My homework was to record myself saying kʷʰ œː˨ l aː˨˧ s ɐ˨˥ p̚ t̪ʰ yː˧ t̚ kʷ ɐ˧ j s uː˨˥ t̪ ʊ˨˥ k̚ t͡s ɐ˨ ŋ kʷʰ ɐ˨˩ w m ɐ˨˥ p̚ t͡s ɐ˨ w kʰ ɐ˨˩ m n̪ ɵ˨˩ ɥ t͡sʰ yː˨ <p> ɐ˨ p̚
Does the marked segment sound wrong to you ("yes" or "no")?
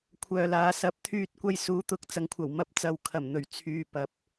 no